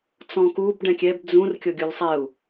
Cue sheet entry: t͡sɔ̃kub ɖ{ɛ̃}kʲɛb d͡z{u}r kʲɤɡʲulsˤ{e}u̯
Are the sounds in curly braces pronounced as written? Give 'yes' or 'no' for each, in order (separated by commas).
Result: yes, no, no